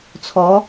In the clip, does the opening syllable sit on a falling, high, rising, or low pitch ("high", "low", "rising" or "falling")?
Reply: rising